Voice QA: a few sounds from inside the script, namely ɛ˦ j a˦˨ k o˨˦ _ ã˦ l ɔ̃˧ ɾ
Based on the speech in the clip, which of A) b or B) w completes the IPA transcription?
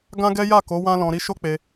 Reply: B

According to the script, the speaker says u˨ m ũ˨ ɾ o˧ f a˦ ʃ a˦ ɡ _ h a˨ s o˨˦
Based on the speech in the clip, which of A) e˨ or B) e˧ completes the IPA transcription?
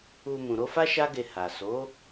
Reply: B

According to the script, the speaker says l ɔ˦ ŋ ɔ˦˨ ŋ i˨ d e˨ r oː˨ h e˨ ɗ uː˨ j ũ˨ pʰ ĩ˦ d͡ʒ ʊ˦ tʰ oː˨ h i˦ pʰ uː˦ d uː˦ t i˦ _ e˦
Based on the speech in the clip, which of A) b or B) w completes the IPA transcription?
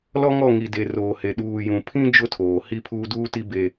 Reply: A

